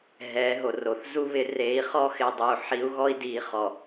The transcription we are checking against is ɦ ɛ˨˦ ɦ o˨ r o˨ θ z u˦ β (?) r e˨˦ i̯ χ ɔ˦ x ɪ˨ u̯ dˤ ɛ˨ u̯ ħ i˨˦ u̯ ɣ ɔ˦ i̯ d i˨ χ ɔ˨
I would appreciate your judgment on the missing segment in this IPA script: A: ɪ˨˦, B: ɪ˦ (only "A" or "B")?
A